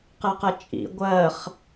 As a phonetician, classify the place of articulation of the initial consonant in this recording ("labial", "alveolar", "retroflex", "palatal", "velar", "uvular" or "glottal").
uvular